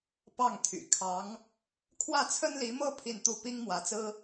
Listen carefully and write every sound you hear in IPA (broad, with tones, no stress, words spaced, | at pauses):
pɑ˥˩ŋt̪ʰy̰˨˩ kʰɑ˧˥ŋ | kʰwä˥˩t͡sʰə˥nli˧˥mɤ˥ pʰi˥˧nt̪u˥˩ pi˥ŋmwä˧˥t͡sɹ̩˥